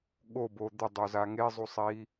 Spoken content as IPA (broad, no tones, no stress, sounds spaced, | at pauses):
ɠ o b o d̪ ʊ dˤ o z a ŋ e zˤ u sˤ i